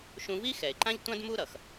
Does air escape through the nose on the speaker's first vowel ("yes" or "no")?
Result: yes